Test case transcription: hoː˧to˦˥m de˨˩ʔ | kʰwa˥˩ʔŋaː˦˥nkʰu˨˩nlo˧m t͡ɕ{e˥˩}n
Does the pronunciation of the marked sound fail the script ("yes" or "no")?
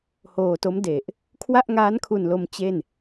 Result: no